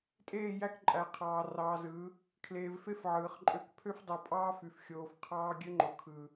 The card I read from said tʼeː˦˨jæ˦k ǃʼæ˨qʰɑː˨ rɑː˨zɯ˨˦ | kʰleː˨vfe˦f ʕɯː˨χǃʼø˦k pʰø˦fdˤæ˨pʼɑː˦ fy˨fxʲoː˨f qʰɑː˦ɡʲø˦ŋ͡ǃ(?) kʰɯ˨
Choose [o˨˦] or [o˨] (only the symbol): o˨